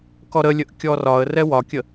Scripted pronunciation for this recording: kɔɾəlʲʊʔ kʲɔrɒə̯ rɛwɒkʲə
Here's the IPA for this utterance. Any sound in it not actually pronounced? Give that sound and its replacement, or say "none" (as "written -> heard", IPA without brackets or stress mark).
ʊ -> ə